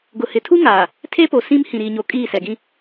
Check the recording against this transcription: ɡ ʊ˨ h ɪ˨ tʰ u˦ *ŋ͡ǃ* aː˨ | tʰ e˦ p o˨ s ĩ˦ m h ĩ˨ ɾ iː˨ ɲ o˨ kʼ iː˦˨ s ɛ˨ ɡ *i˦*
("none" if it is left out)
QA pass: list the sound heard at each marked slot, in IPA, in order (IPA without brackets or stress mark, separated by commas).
ŋ, ĩ˦